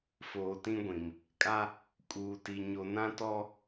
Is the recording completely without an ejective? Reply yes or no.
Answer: no